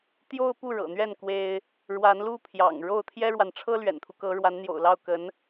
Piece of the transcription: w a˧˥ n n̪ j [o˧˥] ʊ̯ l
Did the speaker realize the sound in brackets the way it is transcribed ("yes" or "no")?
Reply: no